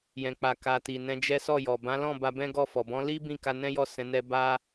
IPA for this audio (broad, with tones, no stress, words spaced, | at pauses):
jɛ̃˨k͡pa˨ka˨ ti˨ nɛ̃˧d͡ʒɛ˦ sɔ˦˨jɔ˨ bã˨˦lɔ̃˦˨ ba˧bɛ̃˦ɡɔ˦˨fɔ˨ bɔ̃˨˦li˦ bĩ˦˨ka˧nɛ̃˦jɔ˦˨ sɛ̃˨˦nɛ˦ ba˦